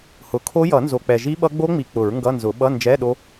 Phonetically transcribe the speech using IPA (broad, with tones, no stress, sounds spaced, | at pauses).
h ʊ˩˥ kʰ o˦˥ j ʌ˨˩˦ n z o˨ k͡p ɛ˨ ʒ i˦˥ ɓ ʌ˦˥ ɡ͡b o˦˥ ŋ͡m i˨ k͡p ʊ˨˩˦ ɹ ŋ ɡ ʌ˧˥˧ n z ʊ˨˩˦ ɓ ʌ˧˥˧ n d͡ʒ ɛ˧˥˧ ɗ o˦˥